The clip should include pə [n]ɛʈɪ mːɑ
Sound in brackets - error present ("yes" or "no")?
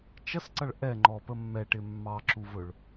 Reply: yes